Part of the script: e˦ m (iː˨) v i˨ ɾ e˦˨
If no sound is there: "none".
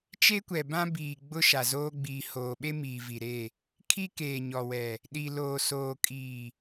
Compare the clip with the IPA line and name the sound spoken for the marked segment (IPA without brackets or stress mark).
iː˨